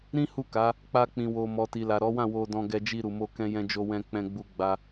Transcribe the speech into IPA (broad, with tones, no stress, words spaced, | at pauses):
ɾĩ˦ hu˦˨ka˨˦ | k͡pa˧ k͡pĩ˨wo˨ mɔ˨ti˨la˨ ɾɔ˨˦wã˦˨ wo˧dɔ̃˧ ɡɛ˧d͡ʒi˧ɾu˨mo˧ kɛ̃˦jɛ̃˦d͡ʒo˦ wɛ̃˧k͡pɛ̃˧ ɡ͡bu˦ ɡ͡ba˦